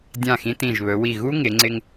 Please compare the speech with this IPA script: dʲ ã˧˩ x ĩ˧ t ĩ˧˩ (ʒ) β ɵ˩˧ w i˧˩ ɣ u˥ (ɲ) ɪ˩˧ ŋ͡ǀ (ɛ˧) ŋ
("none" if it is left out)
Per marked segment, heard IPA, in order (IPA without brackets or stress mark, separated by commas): ʒ, ŋ, ɪ˧